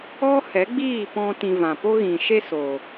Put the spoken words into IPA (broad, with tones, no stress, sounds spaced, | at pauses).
ɔ˦ h ɛ˨˦ ɡ͡b iː˦˨ p ɔ̃˧ t ĩ˧ v ã˨ p o˦ ɣ ĩ˨ ʃ e˦ s oː˨